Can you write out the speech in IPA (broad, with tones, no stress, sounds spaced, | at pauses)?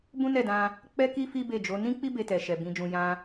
b ũ˦ n ɛ˦˨ d ã˧ | k͡p ɛ˦ k i˦ f i˦ b e˦˨ d͡ʒ o˨˦ n ĩ˦ k͡p i˦ b e˧ t ɛ˨ ʃ ɛ˨ b ĩ˨ d͡ʒ ũ˨ j ã˧